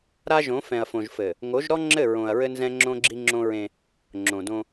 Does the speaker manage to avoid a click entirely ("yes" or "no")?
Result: no